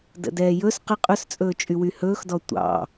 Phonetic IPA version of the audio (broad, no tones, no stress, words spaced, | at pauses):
də̰dɛːjɵs qə qʼɵst͡sʼɵː t͡ʃʼywyhɵːxdɔ tʷɑ̰